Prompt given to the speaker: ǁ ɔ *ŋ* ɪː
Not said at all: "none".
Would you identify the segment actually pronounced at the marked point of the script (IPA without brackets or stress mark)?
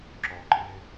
ǃ